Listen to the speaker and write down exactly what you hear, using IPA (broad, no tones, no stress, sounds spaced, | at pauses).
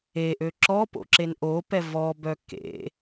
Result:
e ʔ ø ǁ ɔ p o̰ ǁ e n ʔ o p ɛ v ɔ b œ k ḛ